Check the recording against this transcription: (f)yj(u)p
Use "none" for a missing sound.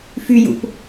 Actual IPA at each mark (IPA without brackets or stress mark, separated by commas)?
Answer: f, ṵ